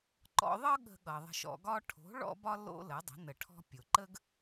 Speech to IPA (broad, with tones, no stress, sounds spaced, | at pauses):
ǃ ɔ̰˧ ðˤ ɤ˥ ɠ ə̤˧ ɠ ʌ˩ ðˤ ə̤˧ ʃ ɔ̰˧ ɡ ɒ˥ ʈʰ o̤˩˥ ɭ ɔ̰˥ b ɒ˥ l o̰˥ l ə˩˥ dˤ ə̤˩˥ n ə˩ ʈʰ ɔ̤˧ pʲ o˩ ǃ ə˥ ɡ